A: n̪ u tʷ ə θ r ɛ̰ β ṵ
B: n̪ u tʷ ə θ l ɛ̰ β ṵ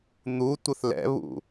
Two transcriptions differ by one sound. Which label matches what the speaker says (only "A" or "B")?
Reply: B